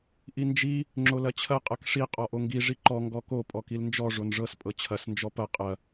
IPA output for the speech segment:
ʔind͡ʒi | ŋ͡ǁolɐt͡ɕʰɐ qʼɤkʂi qʼɔʔoŋɡi ʐiǃɔ ŋɡɔko pʼɔkilnd͡ʒɔ ʐonʐɤs pʼɤt͡ɕʰɐs nd͡ʒɔpɐ qʼɐ

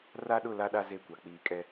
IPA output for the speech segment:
ra˦ɗʊ˦˨ la˦ɗa˦ ze˦kʷa˨ k͡piː˨kʼɛ˦

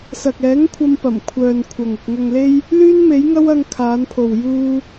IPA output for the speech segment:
sɐ˨k̚ɛː˨˥ŋkʷʰɐ˧m pɐ˨˩mkʷʰœː˨n kʷʰɐ˨ŋʊ˨k̚ ŋɐ˨ŋle˧j | lyː˥nme˨˥jŋɐ˥w ɐ˧ŋkʰaː˨˧npʰo˨w juː˧

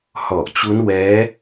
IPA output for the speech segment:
hɔ˨˩ʔt͡ɕu˦˥n wɛː˦˥

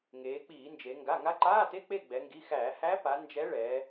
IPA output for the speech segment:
ŋeː˩˧k͡piː˧˩˧nd͡ʒe˩˧ ŋɡa˩˧˩ŋa˧˥ǃaː˧˥˧te˧˥˧ k͡pe˥˨ ɡ͡bɛ˩˧ŋɡi˩˧˩xæː˧˩˧ hæ˧˥pa˩˧ nd͡ʒɛ˧˥ɭɛː˩˧

